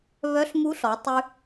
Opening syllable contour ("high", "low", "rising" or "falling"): rising